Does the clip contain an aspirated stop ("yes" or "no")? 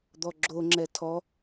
yes